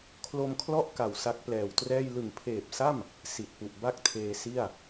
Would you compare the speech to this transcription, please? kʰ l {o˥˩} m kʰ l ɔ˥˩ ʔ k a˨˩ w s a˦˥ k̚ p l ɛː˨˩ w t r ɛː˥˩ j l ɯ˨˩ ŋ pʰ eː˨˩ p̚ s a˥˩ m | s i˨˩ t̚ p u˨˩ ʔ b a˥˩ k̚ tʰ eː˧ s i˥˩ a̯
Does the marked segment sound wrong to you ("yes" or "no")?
yes